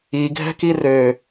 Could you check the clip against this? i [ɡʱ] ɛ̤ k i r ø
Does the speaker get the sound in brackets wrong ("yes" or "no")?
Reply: no